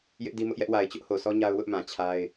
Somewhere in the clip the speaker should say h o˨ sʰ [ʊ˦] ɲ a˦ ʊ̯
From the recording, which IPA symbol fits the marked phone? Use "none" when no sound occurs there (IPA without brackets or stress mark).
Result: ɔ˦